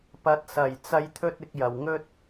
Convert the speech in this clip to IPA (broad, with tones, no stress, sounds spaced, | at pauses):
p ɐ˨˥ t̚ s ɐ˨˩ j t͡s ɐ˨˧ j t̪ʰ ɵ˧ t̚ ɪ˧ k̚ j ɐ˨ w ŋ ɵ˥ t̚